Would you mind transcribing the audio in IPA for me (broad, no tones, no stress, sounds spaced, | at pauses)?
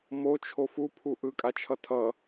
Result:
m o t͡ʃʰ o f u pʰ u ʔ ɯ kʼ a t͡ʃʰ ʌ tʰ ʌ